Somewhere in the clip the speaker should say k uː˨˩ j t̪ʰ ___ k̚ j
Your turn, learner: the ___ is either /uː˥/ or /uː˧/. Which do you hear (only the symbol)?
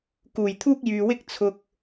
uː˥